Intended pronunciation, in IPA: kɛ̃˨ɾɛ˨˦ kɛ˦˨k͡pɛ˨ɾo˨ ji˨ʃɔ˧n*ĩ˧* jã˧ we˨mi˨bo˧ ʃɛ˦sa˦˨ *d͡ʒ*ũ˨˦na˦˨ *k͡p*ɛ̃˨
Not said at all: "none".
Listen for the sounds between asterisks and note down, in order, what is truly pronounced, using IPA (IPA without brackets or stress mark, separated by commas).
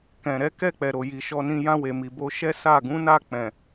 ĩ˧, ɡ, k͡p